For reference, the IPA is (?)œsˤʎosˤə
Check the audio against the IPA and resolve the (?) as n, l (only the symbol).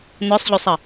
n